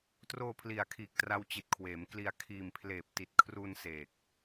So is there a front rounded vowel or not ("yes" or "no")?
no